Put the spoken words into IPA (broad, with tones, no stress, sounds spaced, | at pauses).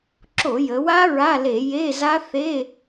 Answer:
ǁ o˧˩˧ j ə˩˧ w a˦˥ ɹ a˧˥˧ l e˧˩˧ j e˧˥˧ z a˦˥ θ e˧˥˧